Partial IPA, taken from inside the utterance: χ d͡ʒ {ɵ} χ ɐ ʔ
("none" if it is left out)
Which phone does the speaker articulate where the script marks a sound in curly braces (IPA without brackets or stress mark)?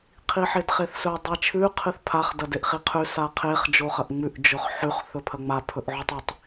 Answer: o